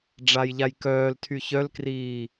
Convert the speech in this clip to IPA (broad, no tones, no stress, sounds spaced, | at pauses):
ɖ͡ʐ a j ʎ a j k œː l tʰ y ç œ l k r iː